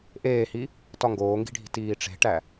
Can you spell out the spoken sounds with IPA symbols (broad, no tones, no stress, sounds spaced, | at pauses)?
ʔ eː h i | t ɒ ŋ ɡ oː ŋ ɡ i̤ ɖʱ i̤ t iː ʈ͡ʂ e̤ ʈ æ